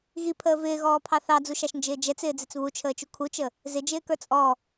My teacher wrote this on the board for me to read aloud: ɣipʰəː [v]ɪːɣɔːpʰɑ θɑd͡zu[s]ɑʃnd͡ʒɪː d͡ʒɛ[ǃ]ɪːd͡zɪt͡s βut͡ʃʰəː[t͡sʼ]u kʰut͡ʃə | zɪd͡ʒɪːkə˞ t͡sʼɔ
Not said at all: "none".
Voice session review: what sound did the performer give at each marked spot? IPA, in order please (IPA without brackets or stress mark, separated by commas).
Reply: v, ʃ, t͡s, t͡ʃ